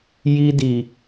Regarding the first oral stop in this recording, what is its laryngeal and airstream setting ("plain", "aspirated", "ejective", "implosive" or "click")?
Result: plain